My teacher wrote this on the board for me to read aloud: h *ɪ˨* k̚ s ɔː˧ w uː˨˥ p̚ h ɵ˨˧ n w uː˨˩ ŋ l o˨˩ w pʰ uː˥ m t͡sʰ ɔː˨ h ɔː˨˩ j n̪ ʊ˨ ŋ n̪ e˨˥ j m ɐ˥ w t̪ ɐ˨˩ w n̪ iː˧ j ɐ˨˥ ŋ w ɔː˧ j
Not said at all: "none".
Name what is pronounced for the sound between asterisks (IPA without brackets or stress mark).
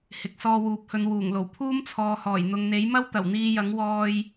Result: ɪ˨